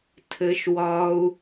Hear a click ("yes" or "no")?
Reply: no